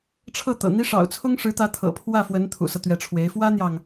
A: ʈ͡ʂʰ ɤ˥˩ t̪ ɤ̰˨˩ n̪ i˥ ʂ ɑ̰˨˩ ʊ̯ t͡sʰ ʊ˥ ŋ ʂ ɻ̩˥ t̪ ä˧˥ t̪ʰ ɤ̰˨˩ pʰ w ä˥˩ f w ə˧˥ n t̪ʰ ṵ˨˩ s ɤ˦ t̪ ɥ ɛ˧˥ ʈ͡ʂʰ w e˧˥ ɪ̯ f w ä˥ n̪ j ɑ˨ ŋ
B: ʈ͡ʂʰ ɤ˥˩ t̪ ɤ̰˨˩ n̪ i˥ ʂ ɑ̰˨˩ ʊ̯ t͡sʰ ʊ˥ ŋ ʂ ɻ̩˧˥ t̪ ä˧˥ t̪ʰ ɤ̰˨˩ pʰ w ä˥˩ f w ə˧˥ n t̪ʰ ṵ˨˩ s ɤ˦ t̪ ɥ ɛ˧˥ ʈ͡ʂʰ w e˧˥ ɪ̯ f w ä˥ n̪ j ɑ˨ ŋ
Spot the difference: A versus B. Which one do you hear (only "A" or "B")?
B